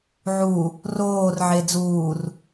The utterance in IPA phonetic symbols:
ʕ u | r oː r ʕ e d͡z uː r

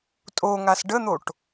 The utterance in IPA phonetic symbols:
tʼ o ŋ a s ɖ ə n̪ o ʈ

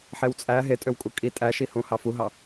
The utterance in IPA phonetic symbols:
ħ e w t͡sʼ æ ɦ e tʼ ø w kʼ u kʼ i tʼ æ ʃ i h ũ h ɑ f u ɦ ɑ

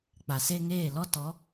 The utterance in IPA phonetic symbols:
k͡p a˨ s e˦ ŋ eː˦˨ l ɔ˦ t ɔ˨˦

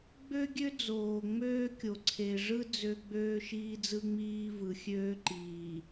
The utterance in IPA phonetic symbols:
ɡ͡b ø˦ ɡʲ ø˦ d͡z oː˨ ŋ͡m øː˦ kʲ o˨ ǀʰ e˨ ʐ ɯ˦ d͡z ø˦ ɡ͡b øː˦ ʃ iː˦ d͡z ɯ˦ ŋ͡m iː˦ v ɯ˨ xʲ øː˦ ǃ iː˨

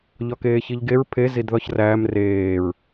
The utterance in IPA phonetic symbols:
ʎ ɒ k eː ç i ʎ ɡ e ɹ pʰ e z i d ð ɒ ç r æː m r eː ɹ

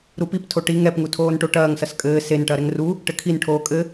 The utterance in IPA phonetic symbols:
ɾ u p i p tʰ o ʈ i ŋ ɛ p ŋ u tʰ oː n ʈ o ʈ ɐː ŋ s ɐ s kʼ ɘː s e n ʈ ɐ ɾ ɛ ŋ r u | ʈ ɘ kʰ i n ʈʰ oː kʼ ɘ

